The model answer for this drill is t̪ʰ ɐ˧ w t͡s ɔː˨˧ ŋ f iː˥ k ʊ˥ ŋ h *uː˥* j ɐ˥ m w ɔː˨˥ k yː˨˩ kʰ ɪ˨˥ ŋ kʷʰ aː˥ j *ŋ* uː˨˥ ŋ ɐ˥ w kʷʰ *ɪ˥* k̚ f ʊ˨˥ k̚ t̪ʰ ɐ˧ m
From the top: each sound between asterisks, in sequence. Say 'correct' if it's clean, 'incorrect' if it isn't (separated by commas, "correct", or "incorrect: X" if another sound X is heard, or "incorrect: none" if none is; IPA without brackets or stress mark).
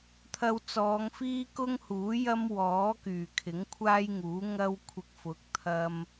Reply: incorrect: uː˨˥, correct, incorrect: ɪ˧